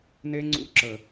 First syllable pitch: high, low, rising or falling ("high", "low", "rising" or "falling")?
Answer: high